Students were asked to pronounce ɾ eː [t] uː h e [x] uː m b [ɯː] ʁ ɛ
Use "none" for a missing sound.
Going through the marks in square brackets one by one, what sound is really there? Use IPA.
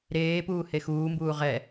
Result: p, x, uː

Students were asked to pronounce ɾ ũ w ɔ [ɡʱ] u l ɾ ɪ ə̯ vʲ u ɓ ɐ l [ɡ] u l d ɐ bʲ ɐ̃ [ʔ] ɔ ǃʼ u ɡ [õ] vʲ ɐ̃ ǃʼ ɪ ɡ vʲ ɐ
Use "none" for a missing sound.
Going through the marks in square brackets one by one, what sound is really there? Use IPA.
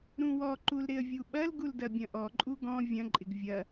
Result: ǃ, ɡ, ʔ, ɔ̃

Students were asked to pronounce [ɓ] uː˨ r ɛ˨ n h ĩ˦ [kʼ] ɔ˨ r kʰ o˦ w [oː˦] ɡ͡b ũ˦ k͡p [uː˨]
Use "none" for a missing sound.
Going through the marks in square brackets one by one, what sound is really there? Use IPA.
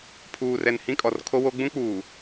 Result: pʰ, kʼ, o˦, uː˨

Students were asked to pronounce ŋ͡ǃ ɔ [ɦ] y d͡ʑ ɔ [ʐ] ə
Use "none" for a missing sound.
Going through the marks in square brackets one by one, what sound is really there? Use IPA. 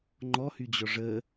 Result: h, ʐ

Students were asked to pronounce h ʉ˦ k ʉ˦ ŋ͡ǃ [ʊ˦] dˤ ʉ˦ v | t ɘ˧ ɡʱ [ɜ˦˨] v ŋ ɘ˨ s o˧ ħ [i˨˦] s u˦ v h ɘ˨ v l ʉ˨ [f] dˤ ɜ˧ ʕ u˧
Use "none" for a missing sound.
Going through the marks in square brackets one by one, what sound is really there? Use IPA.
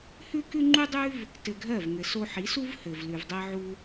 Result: u˦, ɜ˦˨, i˨˦, v

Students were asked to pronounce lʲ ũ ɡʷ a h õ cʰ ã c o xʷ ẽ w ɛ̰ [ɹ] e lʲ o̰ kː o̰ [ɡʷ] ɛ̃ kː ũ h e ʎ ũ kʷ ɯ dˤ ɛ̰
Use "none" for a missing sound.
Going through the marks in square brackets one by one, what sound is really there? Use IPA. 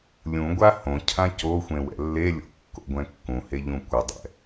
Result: lː, ɡʷ

